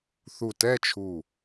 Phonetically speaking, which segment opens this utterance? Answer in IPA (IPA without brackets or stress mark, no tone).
θ